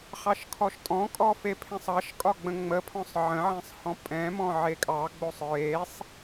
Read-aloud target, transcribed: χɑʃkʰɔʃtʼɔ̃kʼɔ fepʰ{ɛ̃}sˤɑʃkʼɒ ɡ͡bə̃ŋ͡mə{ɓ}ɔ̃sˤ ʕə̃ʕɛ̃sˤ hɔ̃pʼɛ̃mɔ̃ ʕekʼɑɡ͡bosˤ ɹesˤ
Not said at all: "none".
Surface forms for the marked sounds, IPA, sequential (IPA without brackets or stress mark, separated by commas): ẽ, pʰ